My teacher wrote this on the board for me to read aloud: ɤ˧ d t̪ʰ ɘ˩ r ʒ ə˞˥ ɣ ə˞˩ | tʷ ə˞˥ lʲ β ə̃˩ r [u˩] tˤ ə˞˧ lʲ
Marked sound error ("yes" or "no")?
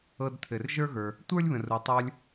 no